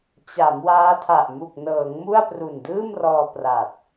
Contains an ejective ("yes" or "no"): no